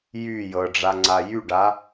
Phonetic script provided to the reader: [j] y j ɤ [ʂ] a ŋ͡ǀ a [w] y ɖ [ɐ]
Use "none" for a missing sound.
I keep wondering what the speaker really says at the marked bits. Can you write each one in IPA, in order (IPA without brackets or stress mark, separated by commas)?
j, ɖ͡ʐ, j, a